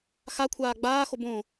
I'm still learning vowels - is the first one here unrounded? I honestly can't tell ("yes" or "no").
yes